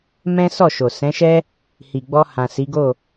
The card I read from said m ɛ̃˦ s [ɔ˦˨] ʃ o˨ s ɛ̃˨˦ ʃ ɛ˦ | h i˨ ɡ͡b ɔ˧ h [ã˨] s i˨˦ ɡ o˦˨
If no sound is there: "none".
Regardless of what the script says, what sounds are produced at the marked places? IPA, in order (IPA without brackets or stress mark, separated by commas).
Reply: ɔ˦˨, ã˨